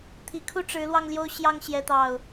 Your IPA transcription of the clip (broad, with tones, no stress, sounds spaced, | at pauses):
t̪ʰ i˨˦ kʰ u˦ ʈ͡ʂ ɻ̩˨˦ l w ɑ˧ ŋ l j o˦ ʊ̯ ɕ j ɑ˦ ŋ ɕ j ɛ˨˦ t̪ ɑ˨˩ ʊ̯